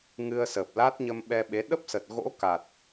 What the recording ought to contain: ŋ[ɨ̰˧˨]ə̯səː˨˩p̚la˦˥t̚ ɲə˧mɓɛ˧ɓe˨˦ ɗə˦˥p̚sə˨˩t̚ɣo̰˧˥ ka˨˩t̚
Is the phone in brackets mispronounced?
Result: yes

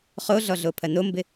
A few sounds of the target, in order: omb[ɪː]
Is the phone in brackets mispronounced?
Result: yes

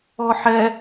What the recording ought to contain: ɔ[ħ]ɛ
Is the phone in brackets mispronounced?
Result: no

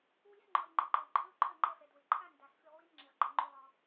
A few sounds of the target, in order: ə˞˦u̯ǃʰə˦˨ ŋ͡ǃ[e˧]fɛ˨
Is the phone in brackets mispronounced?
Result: yes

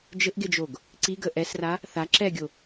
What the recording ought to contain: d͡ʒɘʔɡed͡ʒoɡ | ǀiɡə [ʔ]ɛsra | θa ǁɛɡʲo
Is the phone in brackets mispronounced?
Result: no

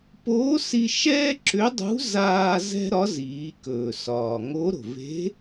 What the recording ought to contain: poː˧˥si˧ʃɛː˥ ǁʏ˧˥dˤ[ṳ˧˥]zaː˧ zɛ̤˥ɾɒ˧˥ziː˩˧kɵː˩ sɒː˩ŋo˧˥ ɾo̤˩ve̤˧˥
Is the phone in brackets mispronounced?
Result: no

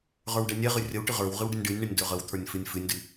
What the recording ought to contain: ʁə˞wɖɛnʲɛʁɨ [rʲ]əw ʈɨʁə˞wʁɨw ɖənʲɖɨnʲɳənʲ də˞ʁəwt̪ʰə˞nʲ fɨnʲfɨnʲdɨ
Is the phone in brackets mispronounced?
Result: no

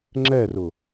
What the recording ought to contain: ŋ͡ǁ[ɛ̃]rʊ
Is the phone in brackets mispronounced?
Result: yes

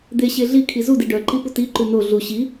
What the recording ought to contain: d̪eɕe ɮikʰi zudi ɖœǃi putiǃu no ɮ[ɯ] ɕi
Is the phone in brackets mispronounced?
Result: yes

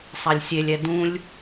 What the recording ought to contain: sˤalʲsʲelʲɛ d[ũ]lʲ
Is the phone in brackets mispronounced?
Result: no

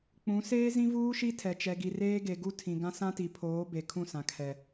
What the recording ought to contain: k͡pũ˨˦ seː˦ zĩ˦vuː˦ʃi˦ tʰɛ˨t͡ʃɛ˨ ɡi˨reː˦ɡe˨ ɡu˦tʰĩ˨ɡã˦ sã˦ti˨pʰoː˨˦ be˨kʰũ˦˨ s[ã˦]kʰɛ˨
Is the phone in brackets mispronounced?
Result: yes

